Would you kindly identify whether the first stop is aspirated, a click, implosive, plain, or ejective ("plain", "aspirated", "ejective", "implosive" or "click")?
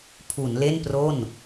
aspirated